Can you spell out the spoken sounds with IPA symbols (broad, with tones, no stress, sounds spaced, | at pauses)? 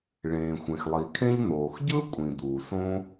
ɭ ẽː˩ xʷ ẽ˩ x lˠ i˩ kʰ ẽ˥ ʎ n̪ oː˩ x ɟ ɯ˥ kʷʼ ĩ˩ d̪ uː˩ s õ˥